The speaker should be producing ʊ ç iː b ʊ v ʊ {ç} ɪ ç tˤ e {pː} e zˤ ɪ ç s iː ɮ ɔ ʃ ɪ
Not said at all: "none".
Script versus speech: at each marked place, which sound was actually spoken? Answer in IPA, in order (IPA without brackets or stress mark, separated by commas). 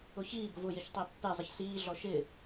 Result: j, pː